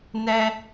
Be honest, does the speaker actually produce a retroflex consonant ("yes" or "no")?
no